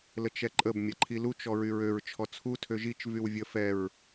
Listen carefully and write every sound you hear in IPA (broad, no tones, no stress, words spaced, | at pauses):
lət͡ʃɛǃʼəb mʲaǃʰilut͡ʃ ɔɹyɹøɹ t͡ʃʰɔt͡sʰu tʰøʒit͡ʃ vywvʲə fɛɹ